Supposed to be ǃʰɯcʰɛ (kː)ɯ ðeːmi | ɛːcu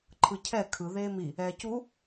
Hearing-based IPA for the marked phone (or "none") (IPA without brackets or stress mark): kʰ